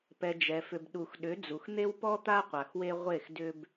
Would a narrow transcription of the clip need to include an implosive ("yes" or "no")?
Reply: yes